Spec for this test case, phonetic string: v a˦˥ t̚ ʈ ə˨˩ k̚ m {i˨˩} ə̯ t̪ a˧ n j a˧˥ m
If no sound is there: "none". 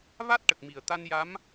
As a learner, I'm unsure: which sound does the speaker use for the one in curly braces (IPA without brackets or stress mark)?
i˨˩